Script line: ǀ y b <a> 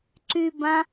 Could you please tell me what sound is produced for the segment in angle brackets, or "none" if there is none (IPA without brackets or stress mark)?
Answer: ã